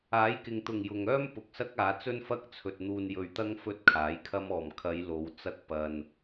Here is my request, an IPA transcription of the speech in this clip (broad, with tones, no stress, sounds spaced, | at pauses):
aː˨˥ j k ɪ˨ ŋ t̪ ʊ˨˩ ŋ j ʊ˨ ŋ œː˥ m p ʊ˨ k̚ s ɐ˥ k̚ aː˨˧ t͡s ɵ˥ n f ɐ˥ k̚ t͡sʰ ɵ˨ t̚ n̪ uː˨ n j ɵ˨ ɥ t̪ ɐ˧ ŋ f ɵ˥ t̚ kʰ aː˨˥ j kʰ ɐ˥ m ɔː˨˩ m kʰ ɐ˨˧ j l o˨˧ w t͡s ɐ˥ k̚ p ɐ˧ n